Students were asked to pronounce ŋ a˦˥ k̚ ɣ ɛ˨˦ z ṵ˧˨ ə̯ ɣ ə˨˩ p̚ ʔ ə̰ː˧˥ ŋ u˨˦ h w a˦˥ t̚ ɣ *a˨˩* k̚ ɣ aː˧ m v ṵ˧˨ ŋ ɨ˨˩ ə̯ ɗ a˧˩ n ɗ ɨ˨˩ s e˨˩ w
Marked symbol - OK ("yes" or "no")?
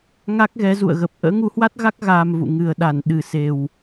no